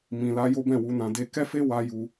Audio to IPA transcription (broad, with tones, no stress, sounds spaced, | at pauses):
m ĩ˨ l a˧ j o˦ b ɛ̃˦˨ w u˧ n ã˧ d e˧ k ɛ˦ f e˦ w a˧ j u˧